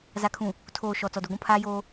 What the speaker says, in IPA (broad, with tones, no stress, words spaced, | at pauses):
za˨kʰũ˨ | tʰoː˨ ʃɔ˨ t͡sɔ˨du˨ɡʷũ˦ pʰaː˦joː˦